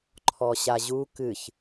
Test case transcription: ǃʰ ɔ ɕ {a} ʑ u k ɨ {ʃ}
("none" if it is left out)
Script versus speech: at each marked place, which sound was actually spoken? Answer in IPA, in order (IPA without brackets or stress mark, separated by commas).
a, ç